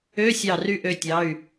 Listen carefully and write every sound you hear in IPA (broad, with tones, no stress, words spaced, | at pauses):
øː˧˥˧sʲɑ˧˩ry˧ ʔø˧tʲɑ˩˧˩y̯